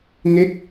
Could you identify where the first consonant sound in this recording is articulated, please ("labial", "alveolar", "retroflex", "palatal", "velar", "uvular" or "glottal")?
velar